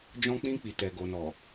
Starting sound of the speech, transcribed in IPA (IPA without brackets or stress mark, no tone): d͡ʒ